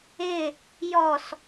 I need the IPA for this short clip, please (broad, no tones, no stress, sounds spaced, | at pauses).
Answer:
ɪ | j ɔ s